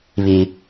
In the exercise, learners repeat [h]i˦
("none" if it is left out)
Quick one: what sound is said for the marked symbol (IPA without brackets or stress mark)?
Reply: β